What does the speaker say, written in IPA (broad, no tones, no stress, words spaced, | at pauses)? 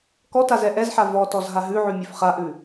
kɔtaz ɛʔɛzħa vɔtɔz ɦaɦʉʕʉ mʲʉfχaʔʉ